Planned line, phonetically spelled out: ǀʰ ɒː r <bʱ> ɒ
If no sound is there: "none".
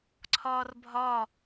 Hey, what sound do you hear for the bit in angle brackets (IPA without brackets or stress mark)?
bʱ